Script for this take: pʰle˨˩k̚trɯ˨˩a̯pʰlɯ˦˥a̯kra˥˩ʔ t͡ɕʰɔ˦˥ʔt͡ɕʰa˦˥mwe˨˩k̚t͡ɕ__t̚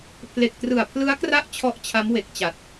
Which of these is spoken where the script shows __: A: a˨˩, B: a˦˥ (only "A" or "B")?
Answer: A